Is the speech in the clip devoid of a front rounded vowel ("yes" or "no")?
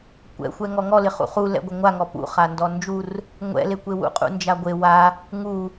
yes